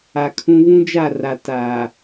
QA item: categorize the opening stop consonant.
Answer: aspirated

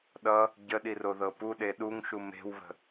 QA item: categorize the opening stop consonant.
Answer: implosive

